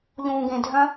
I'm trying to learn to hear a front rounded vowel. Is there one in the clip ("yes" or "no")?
yes